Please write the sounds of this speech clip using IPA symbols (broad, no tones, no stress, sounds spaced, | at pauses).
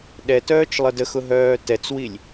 ɗ ɛ t œː t͡ʃ lˠ ə d ə x ʊ ɦ œː t ɛ t͡s w i lʲ